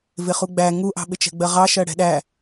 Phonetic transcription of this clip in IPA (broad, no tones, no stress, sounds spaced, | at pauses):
v ɪ χ u ɡ͡b æ ŋ u ʔ ɑ̤ ɓ ɪ t͡ʃ ɛ̤ ɡ͡b ɜ ʁ ɑ ʃ ɜ ɽ ɛ̤ ɗ æ